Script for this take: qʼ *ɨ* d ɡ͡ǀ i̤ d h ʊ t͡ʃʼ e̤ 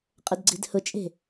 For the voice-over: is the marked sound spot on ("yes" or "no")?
no